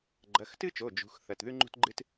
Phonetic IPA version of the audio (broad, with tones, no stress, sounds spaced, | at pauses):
ɡ͡ǃ ɐ˩˧˩ x t ɨ˥ t͡ʃ o˩˧˩ d͡ʒ ṳ˩˧˩ x θ ɐ˩˧˩ t ð ʉ˥ ŋ͡ǃ ṳ˥ t ɡ͡ǃ ɨ˥ t